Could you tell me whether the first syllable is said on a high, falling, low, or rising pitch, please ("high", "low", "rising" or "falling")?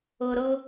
high